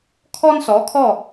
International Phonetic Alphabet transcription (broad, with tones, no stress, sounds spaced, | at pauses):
kʰ ɔ˥ n s ɔ˩˥ kʰ ɔ˥˩